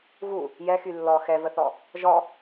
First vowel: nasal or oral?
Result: oral